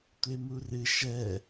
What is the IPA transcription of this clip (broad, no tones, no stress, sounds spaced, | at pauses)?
tʷ e m u r ɨ ʃ ɛ